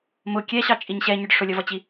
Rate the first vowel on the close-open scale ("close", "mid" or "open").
close